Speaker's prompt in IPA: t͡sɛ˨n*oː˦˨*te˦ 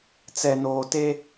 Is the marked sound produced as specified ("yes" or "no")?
no